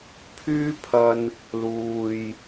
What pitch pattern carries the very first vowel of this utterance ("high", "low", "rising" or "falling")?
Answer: high